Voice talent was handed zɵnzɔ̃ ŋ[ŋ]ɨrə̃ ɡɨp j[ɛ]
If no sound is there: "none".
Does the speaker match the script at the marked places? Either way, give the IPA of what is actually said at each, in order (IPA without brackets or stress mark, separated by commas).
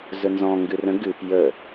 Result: ɡ, ə